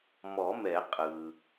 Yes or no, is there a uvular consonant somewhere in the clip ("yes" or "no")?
yes